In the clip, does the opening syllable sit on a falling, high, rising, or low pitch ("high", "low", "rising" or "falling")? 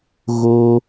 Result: high